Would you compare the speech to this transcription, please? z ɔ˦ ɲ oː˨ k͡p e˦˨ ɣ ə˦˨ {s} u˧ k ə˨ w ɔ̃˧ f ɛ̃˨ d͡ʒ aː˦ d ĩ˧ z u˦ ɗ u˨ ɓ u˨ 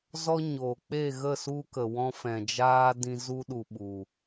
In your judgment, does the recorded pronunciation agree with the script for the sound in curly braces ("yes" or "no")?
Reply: yes